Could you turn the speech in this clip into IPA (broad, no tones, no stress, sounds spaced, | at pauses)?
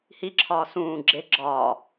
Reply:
h i ǁʰ ɒː s ũː ɡ͡ǁ e ɡ͡ǁ ɒː